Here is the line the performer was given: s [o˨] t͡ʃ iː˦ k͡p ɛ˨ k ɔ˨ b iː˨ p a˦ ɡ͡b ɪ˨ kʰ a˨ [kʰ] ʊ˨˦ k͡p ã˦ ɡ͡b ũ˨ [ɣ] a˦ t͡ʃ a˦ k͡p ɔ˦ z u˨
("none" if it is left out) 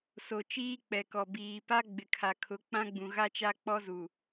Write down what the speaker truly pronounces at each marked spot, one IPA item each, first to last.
o˨, kʰ, ɣ

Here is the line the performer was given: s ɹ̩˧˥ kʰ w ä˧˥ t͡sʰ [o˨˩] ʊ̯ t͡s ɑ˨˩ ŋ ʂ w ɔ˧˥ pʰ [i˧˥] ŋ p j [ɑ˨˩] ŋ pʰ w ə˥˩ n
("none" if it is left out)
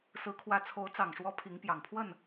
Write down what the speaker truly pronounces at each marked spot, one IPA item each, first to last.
o˧˥, i˧˥, ɑ˨˩

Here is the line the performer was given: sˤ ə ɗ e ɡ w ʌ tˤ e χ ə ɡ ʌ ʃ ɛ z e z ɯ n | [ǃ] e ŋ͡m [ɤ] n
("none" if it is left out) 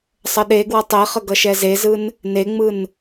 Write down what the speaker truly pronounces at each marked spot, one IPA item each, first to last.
n, ɯ

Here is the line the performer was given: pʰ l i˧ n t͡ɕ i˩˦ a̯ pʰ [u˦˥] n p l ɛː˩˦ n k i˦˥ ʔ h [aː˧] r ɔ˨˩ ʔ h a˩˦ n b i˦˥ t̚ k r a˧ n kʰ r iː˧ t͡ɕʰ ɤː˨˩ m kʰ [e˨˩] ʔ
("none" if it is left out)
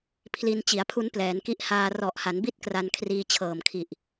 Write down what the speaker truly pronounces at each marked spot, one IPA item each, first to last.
u˦˥, aː˧, i˨˩

